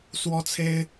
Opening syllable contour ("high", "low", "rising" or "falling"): high